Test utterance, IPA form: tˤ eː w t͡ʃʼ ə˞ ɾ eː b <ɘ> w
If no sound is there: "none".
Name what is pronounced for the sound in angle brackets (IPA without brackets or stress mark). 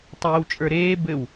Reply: ɘ